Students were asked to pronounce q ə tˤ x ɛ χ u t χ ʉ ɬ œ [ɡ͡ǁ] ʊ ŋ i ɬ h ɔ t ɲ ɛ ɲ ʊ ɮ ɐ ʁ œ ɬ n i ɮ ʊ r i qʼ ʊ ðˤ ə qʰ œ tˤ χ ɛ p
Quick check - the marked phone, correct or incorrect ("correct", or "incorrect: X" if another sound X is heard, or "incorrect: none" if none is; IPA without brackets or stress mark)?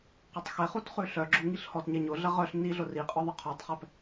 correct